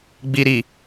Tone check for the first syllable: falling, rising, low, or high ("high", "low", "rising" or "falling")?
low